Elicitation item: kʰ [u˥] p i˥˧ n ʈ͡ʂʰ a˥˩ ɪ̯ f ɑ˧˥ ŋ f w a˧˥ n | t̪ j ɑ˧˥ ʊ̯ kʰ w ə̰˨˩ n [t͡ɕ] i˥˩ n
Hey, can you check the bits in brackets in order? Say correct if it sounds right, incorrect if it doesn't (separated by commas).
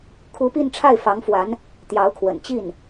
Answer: incorrect, correct